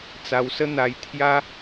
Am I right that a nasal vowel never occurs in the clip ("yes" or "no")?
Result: yes